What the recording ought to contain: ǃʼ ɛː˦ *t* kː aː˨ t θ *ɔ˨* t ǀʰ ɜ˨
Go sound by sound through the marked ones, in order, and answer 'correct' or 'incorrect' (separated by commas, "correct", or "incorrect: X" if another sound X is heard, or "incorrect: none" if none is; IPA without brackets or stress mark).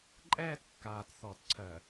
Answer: correct, correct